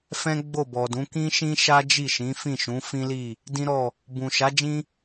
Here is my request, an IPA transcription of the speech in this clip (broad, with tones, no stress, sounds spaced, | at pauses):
f ɛ̃˦ ɡ͡b o˦˨ b ɔ˨ d ũ˨˦ k ĩ˦ ʃ ĩ˦ ʃ a˦ d͡ʒ i˦˨ ʃ ĩ˨˦ f ĩ˦˨ ʃ ũ˨˦ f ĩ˦ l i˦˨ | d ĩ˦ ɾ ɔ˦˨ | b ũ˨ ʃ a˨˦ d͡ʒ ĩ˦